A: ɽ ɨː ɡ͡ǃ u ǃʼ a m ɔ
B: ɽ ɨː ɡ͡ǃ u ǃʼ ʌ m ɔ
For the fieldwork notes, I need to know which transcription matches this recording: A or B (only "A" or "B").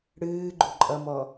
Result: B